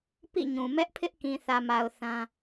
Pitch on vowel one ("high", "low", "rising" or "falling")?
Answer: falling